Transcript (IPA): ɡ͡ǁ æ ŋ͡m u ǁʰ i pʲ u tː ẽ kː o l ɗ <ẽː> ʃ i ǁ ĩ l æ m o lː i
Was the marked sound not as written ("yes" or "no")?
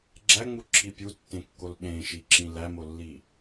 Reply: yes